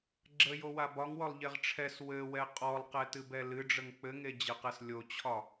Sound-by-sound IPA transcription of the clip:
ɡ͡ǁə jowabɒŋwɔlˠ ʎeʁʈ͡ʂʰɛs wɘwɛ qʼɔlˠqɛ tɨbɛlɨɖ͡ʐəŋ k͡pɘŋed͡ʑɘqɛs lʲot͡ɕʰɒ

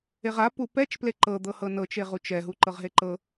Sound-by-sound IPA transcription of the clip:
eʁa pupɛt͡ʃ pleǃɤd̪ɤ hɤnɤt͡ʃeʁut͡ʃ ɛɦuǃɤʁɦe ǃɤ

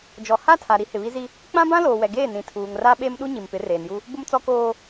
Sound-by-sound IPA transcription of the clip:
d͡ʒɔ˨ha˦˨tʰa˨ ɾi˦hɪ˨βi˦zi˦ | k͡pã˦bã˦ loː˨wɛ˨ɡeː˦˨ nĩ˨ tʰuː˨ŋra˦ ɓe˦mɗu˦ ɲi˨mpɪ˨˦reː˨nju˦ | bʊ˦mt͡sɔ˦koː˦

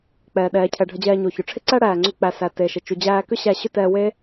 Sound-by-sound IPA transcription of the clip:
k͡pɛː˩ɗɛː˩ cʰɛ˩ ɖʱə˧d͡ʑɛː˧ɲo˩çʏ˩ ʈ͡ʂʰɪ˥ǀæ˥ɽæː˩ŋ͡ǀʏ˧ k͡pæ˩sæ˩ te˩ʃɪ˩ t͡ʃu˩d͡ʑæː˧kʏ˥ɕæ˧ ɕʏ˥tɛː˧we˥

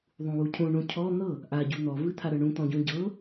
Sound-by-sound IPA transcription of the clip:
ðˤũwucʰũ ɳũcʰɔ n̪ɤ | ʔa ɟun̪ɔ vɨt̪ʰaɾɤɳũ t̪ɔ̃ɟũɟɤ

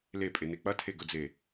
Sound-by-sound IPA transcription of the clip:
lepʼene k͡pɐtʰeɡɵd͡ze

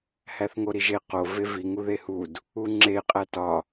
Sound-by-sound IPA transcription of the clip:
hæθŋoɾiʒe qo vevi ŋuðehud | uŋ͡ǁe qʼætɒ

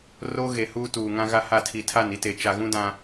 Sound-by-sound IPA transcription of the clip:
roː˦ɣe˨huː˦ tuː˨ŋã˦ ɣa˦ha˦˨ tʰi˨ tʰa˦˨n i˦te˨ t͡ʃa˨ɣũ˦dã˨

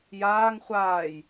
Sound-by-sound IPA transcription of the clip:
jaːŋ χʷaːj

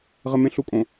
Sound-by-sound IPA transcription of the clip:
ʁɘmẽɬukʼõ

